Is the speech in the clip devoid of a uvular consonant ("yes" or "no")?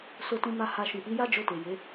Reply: yes